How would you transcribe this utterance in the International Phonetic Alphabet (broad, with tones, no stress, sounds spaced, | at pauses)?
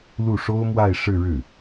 l u˥˩ ʂ o˥ ʊ̯ m w a˥˧ ɪ̯ ʂ ɻ̩˥˧ ɻ ɻ̩˥˩